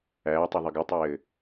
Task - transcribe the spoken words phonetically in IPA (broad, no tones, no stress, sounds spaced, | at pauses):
æː tˤ u ðˤ ɨ ɡ ɘ tˤ ɘː